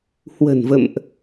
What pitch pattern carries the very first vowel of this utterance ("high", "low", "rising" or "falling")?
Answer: low